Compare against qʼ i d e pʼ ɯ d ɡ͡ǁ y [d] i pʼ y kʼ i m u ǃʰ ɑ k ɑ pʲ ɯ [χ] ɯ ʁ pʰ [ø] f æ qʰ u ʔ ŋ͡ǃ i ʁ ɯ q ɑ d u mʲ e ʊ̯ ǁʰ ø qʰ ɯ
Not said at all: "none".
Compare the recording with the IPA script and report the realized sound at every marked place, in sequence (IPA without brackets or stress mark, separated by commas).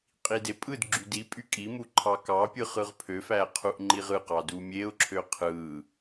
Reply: d, χ, ø